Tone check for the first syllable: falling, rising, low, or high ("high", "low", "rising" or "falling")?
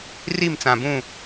falling